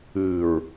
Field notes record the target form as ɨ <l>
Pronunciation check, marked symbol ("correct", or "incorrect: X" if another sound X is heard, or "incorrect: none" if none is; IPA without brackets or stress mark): incorrect: ɹ